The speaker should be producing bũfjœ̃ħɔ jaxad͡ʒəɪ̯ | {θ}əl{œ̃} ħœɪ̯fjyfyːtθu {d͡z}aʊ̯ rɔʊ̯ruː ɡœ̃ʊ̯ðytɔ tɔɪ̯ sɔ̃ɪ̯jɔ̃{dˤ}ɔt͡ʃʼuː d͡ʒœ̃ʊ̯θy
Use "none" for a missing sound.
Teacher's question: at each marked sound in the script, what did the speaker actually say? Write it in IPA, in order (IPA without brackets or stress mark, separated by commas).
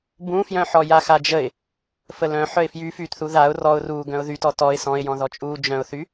f, œ̃, ð, ð